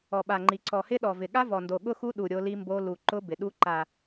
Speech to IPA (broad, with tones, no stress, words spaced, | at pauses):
ɔ˨˩ɓa˨˩ŋ͡ǃi˨˩ ǀɔ˨˩hɪ˦˥ ɗɔ˨˩vɪ˨˩ ɠa˦˥vɔ˨˩ndo˨˩ ɠʊ˦˥xu˦˥ ɗu˨˩ ɾʲo˦˥li˦˥mbo˦˥ lu˨˩ǃʊ˦˥ bɪ˨˩ɗu˦˥ ǃa˨˩